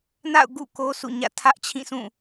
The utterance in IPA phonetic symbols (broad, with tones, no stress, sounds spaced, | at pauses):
n a̰˦˨ ʊ̯ ɡ ṵ˦˨ k o˦ sʰ ṵ˦˨ ɲ ä̰˦˨ tʰ ä˦ ʔ t͡ɕʰ ĩ˦˨ sʰ ũ˦˨